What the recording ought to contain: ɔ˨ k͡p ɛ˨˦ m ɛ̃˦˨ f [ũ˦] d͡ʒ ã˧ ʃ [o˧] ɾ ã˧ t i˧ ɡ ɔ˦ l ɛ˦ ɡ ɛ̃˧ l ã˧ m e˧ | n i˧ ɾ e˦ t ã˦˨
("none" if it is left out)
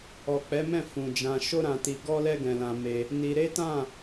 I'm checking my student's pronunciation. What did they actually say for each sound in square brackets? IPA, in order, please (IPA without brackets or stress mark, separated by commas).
ũ˨, o˦